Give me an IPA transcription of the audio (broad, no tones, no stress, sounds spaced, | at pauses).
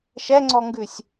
ʃ ɛ ŋ͡ǀ ɔ ŋ ɡ ʉ sʲ